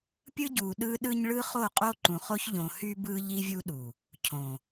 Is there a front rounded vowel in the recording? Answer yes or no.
yes